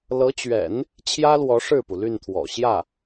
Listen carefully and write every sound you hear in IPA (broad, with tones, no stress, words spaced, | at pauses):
lɤ˧˥t͡ɕɥɛ̰˨˩˦n | t͡ɕʰjä˥lwɔ˧˥ ʂɻ̩˥˩pu˩ly˥˩nt̪ʰwɔ̰˨˩ ɕjä˥˩